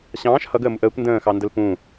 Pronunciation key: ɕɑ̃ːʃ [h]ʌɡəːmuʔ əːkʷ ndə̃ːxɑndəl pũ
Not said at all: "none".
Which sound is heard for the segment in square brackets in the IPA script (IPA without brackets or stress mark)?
h